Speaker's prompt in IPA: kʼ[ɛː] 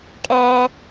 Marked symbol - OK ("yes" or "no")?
yes